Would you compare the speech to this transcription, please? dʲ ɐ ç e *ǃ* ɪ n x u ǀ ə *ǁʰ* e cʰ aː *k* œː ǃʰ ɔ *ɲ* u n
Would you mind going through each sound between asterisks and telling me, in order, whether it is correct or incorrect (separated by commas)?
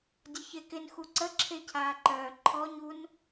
incorrect, correct, incorrect, correct